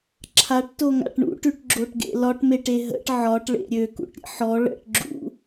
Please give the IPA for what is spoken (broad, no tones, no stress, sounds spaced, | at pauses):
ǁʰ a ʈ t o ŋ a̰ ʈ ɳ ṵ ʈ ʉ ʈ ɡ͡ǁ o ʈ ɡ ḛ l ɒ ʈ m e ʈ e ɦ ə̰ ʈ ʕ ɒ ʈ ɭ ḛ ɾʲ ø k ṵ ʈ ɾʲ ə̰ ħ ɔ ɭ ə̰ ʈ ɡ͡ǁ ṵ